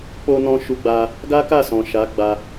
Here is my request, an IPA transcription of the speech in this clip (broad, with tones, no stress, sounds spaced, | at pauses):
k͡p o˧ n ɔ̃˧ ʃ u˧ ɡ͡b a˧ | ɡ a˦ k a˦˨ s ɔ̃˨ ʃ a˨˦ ɡ͡b a˧